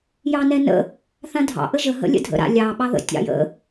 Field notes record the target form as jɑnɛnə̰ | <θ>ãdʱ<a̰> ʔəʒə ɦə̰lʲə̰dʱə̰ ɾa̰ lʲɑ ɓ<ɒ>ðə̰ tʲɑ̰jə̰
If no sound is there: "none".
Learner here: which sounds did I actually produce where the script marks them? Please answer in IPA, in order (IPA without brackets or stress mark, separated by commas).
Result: θ, ɑ̰, ɑ